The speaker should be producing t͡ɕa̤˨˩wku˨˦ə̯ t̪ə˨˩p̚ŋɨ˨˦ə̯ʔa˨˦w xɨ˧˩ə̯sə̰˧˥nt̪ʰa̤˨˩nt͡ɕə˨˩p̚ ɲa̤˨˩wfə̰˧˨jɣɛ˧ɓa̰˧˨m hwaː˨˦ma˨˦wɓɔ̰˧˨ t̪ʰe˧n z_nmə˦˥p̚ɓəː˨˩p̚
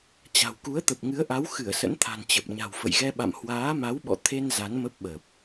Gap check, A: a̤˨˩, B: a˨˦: B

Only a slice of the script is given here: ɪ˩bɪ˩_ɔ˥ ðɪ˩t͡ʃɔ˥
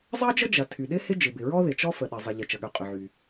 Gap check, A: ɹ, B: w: A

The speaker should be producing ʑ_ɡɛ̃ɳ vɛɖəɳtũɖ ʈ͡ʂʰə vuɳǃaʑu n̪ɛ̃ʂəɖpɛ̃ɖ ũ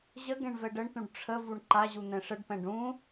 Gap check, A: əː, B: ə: B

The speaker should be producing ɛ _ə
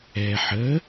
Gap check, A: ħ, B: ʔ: A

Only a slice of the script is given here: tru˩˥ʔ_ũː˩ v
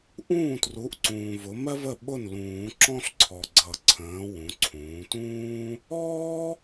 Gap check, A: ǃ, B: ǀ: B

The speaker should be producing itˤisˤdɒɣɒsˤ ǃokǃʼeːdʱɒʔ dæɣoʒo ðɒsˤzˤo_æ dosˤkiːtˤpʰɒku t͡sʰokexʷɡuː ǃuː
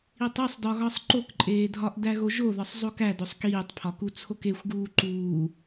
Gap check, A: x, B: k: B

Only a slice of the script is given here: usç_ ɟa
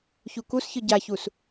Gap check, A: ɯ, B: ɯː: A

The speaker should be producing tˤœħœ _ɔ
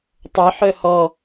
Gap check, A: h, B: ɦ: A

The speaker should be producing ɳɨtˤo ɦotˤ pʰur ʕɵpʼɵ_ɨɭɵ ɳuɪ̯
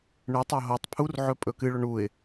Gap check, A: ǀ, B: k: B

